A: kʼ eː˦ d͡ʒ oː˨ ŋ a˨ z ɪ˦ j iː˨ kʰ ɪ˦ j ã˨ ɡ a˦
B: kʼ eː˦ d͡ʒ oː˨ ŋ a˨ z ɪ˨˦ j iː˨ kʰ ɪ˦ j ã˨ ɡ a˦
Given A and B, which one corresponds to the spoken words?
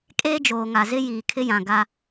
A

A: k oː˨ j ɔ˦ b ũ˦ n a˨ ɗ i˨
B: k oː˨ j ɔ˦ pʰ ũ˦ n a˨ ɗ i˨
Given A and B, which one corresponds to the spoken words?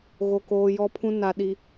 B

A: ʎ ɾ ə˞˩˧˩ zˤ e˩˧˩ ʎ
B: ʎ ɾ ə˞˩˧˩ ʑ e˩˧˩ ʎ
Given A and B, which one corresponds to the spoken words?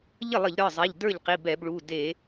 A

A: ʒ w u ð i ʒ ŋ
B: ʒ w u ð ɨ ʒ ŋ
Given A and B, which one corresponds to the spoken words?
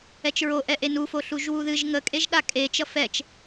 B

